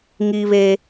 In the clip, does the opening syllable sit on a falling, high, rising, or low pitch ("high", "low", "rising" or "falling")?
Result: high